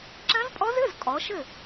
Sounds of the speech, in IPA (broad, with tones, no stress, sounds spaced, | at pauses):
ǁ ɐ̃˦˥ z pʼ ɔ˦˥ z ɘ˧˥˧ z kʼ ɔ˨˦ ʃ ɘ˥˨